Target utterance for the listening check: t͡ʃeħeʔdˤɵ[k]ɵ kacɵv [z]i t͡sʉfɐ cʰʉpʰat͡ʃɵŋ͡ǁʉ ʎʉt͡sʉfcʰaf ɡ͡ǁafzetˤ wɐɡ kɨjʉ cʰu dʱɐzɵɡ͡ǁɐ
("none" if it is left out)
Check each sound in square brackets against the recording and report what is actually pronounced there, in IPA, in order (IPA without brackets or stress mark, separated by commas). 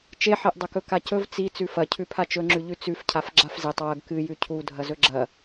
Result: k, t͡s